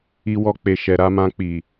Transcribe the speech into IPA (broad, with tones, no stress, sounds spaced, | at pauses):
i˧ w ɔ˧ k͡p e˨ ʃ ɛ˨ ɾ a˧ m ã˧ k͡p i˨